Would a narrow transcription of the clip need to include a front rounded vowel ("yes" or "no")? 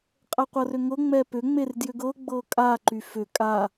yes